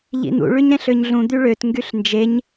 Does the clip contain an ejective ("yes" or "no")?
no